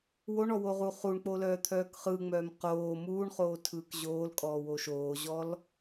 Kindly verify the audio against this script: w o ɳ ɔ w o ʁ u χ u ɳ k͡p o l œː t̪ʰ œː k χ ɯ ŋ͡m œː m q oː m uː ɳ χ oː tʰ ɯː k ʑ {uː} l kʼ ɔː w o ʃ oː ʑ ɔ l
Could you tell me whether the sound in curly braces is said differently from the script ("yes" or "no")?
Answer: yes